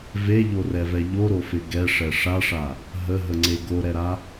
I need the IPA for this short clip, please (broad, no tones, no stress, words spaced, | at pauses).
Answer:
veʎorɛvɛ ʎoɾofɪ ɡɛʂɛ ʂaʂa | ɦəɦəŋ͡ǀe ɡoɾɛɾa